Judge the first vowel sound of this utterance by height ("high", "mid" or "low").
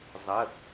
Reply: mid